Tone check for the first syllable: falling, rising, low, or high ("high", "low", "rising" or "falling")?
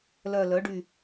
low